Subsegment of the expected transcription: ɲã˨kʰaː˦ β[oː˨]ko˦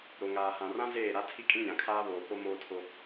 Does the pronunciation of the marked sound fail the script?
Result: no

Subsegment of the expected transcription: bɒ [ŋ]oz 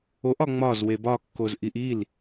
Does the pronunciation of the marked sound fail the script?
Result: yes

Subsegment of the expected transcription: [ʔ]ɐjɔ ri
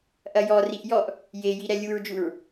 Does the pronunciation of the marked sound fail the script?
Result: no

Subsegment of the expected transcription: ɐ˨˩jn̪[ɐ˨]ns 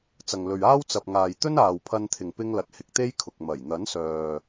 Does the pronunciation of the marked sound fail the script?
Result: yes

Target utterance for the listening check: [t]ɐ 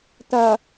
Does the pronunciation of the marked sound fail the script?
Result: no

